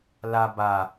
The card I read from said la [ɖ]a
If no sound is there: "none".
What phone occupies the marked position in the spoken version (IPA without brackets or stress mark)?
b